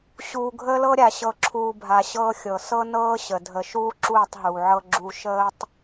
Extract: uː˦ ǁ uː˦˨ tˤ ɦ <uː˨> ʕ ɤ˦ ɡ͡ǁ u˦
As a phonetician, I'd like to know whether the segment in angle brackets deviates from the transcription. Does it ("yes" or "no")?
no